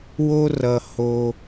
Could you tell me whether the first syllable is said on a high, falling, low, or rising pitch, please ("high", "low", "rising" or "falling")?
high